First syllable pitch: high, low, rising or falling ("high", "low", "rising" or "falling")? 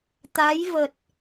rising